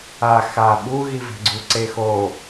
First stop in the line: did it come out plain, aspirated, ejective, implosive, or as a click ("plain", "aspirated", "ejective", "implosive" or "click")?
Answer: implosive